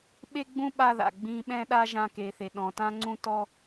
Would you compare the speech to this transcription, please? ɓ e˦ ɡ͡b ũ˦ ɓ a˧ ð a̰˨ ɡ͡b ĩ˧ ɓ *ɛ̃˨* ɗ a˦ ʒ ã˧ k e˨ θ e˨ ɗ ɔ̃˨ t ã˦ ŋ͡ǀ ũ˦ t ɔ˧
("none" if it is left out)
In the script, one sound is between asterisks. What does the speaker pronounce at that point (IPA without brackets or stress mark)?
ɛ̃˦